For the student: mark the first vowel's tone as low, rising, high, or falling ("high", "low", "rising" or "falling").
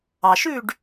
low